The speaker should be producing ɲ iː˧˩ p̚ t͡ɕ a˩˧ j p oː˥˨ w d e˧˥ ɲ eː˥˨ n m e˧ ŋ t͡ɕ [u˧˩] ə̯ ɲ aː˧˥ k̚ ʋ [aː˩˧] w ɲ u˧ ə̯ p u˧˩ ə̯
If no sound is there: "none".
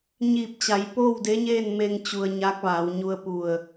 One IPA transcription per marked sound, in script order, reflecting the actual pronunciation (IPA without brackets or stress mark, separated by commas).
u˩, aː˩˧